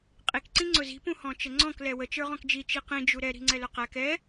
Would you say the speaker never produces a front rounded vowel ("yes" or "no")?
yes